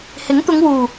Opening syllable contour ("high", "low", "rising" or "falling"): rising